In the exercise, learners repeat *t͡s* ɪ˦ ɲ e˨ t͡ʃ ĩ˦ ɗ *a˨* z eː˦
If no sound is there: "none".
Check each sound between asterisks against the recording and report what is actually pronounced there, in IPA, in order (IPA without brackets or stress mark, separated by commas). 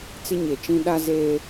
t͡s, a˦